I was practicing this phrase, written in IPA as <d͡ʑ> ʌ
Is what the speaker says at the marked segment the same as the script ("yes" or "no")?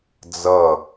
no